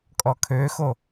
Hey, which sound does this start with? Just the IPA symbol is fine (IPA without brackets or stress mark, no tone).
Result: kʼ